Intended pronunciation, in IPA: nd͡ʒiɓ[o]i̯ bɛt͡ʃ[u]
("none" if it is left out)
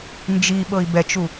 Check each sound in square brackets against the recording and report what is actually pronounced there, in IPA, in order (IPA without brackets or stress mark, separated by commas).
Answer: ɤ, u